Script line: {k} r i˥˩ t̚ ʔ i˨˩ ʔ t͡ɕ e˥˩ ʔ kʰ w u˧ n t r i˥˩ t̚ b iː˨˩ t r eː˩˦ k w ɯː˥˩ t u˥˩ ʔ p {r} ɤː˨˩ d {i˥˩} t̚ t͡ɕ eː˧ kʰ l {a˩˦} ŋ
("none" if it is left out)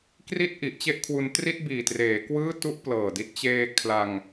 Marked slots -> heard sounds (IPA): k, l, i˦˥, a˧

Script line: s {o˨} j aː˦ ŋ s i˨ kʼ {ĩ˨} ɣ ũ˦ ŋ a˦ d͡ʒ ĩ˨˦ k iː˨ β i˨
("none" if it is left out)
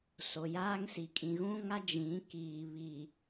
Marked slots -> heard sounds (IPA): o˨, ĩ˨

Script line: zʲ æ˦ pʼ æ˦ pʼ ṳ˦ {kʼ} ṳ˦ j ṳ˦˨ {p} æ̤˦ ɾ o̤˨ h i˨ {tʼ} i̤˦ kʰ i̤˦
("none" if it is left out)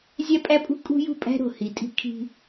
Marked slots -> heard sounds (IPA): kʼ, pʼ, tʼ

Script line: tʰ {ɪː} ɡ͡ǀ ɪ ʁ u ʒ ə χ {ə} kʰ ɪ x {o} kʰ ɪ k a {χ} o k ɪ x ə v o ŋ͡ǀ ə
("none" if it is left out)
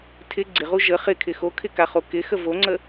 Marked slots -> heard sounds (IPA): ɪ, ɪ, o, χ

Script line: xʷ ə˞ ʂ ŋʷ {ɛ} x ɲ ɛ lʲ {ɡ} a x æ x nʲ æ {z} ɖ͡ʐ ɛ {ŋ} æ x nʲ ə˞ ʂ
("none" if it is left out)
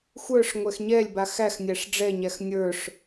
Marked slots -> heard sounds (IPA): ɛ, b, ʂ, ɲ

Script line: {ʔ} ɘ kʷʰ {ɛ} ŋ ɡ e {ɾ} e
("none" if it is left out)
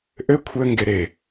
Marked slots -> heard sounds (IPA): ʔ, ɘ, ɾ

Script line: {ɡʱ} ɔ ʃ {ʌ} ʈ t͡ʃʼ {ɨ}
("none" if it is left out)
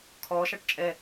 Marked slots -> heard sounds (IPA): kʰ, ɑ, ɛ

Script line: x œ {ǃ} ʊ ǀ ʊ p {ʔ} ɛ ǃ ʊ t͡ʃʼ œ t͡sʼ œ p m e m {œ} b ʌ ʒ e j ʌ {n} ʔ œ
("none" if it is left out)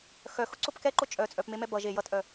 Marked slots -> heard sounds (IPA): x, k, ɛ, t

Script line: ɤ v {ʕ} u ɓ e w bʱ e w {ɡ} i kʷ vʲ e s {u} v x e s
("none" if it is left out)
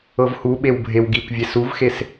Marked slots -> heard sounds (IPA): h, ɡ, u

